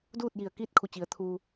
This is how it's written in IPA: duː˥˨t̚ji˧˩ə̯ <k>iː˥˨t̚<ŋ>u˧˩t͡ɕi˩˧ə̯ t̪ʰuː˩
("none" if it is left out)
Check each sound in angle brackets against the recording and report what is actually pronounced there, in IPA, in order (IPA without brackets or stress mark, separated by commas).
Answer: k, kʰ